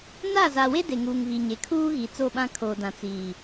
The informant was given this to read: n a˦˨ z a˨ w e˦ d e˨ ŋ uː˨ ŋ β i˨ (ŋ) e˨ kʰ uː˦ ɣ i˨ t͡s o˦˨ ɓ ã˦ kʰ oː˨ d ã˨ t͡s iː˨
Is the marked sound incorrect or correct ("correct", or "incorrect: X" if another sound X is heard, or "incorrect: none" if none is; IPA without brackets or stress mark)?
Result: incorrect: ɲ